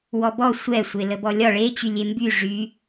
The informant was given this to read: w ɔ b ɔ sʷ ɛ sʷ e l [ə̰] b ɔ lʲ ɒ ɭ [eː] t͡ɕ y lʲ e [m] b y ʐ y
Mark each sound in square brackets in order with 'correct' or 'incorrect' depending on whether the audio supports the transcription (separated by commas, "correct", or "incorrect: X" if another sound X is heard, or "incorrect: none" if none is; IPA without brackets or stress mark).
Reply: incorrect: ə, incorrect: e, correct